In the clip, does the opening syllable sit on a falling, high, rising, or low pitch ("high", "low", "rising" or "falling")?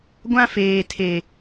high